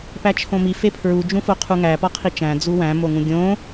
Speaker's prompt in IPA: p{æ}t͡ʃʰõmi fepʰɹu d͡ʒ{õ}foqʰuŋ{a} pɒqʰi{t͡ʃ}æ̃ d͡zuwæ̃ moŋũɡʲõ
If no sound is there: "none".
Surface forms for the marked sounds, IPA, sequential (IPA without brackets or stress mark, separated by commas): æ, ũ, æ, t͡ʃ